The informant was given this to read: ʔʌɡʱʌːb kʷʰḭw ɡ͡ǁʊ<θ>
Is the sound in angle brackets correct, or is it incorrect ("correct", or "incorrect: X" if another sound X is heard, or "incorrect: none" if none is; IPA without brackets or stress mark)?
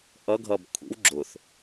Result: correct